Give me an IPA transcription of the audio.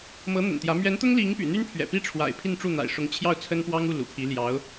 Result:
m ɤ˧˥ n̪ ə̰˨˩ n t̪ j ä˧˥ m ɥ ɛ˧˥ n t̪ ʊ˥ ŋ l i˧˥ ŋ p y̰˨˩ n̪ y˥ n pʰ ɥ ɛ̰˨˩ p i˥ ʈ͡ʂʰ w a̰˨˩ ɪ̯ pʰ i˥˧ n ʈ͡ʂ u˥˩ n̪ a̰˨˩ ɪ̯ ʂ ʊ˧˥ ŋ t͡ɕʰ j ɑ˥˩ ʊ̯ t͡sʰ ə˥ n p w ɑ˥ ŋ u˥˩ l ṵ˨˩ pʰ i˧˥ l j ɑ˧˥ ʊ̯

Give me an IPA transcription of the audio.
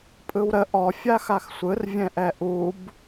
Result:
pʼ ɯ w ɾ ə ʔ ɔ fʲ a x a x sʷ ɯ r vʲ ɛ̃ ʔ ɛ ʔ u b

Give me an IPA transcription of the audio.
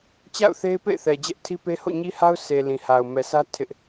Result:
t͡ɕ a̰˦˨ ʊ̯ θ e˦ ɪ̯ p ḛ˦˨ ɪ̯ θ ɛ˨ d͡ʑ ɛ˦ ʔ tʰ i˦ p e˦ h o̰˦˨ ɲ i˦ h a˦ ʊ̯ s e˨ l ĩ˨ h a˨ ʊ̯ m ɛ˨ s ä˦ tʰ ɪ˦ ʔ

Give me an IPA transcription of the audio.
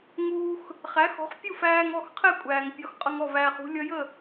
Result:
ŋ uː˧ x | χ æ˩˥ x ɔ̤˩˥ χ pʲ u˥˩ f æː˧ ŋ ɔ˥˩ x qʰ ɛ˥˩ kʷʼ æː˩ ŋ pʲ ɒ˩˥ x qʼ ʌ˧ ŋ ɔ˥˩ v æː˧ χ ṳ˥ lʲ ʌ˥ j ə˥˩

